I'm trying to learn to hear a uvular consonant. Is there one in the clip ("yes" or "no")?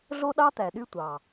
no